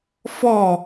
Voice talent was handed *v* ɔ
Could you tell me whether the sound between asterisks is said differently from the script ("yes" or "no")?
yes